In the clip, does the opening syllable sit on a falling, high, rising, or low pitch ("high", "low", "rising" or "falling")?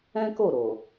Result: high